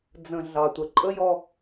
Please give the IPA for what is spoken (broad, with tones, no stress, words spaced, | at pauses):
d͡zə̃˨ ɮɑ˨tʷə˨ ǃʼə˦jɔ˦